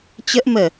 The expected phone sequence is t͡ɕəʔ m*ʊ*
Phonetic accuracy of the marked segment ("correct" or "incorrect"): incorrect